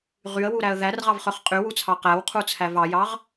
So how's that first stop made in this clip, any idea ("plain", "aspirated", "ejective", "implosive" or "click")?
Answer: ejective